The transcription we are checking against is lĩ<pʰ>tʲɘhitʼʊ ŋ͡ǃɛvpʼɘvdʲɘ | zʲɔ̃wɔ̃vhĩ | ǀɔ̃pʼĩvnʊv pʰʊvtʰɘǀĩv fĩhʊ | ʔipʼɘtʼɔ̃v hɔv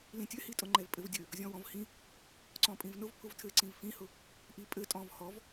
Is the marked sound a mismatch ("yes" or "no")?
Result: yes